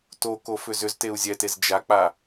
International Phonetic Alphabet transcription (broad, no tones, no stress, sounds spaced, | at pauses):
t o k o f ʏ z ʏ z t e u̯ zʲ ɛ t e z d͡ʒ a k͡p a